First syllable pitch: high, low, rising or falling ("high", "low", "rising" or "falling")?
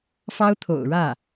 high